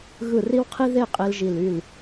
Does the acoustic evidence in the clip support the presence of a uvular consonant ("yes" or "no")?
yes